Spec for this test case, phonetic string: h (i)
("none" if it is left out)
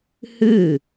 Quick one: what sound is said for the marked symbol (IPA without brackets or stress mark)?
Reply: ɨ